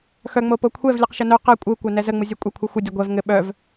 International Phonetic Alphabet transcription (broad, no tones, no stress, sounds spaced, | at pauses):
x œ ŋ͡m o p o kʷʰ ɛ v lʲ ɘ q ʃ ə n œ q ɛ kʷʼ ɯ kʷ œ n ɛ z ə ŋ͡m ɯ zʲ œ kʷʼ ɛ kʷʰ ɯ xʷ ə dʲ ə ɡʷ ɛ v ŋ ɘ ɓ œ v